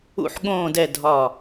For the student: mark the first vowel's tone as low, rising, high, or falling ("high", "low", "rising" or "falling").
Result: low